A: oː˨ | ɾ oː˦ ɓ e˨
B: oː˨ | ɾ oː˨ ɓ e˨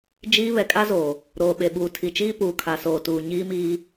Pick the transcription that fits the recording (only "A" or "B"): B